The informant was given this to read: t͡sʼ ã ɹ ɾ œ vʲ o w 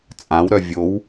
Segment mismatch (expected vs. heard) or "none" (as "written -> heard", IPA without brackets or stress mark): ɹ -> w